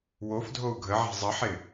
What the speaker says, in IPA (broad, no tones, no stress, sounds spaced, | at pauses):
w o f dʱ o u̯ ɡʱ ə ʕ e̤ zˤ ə ħ ɪ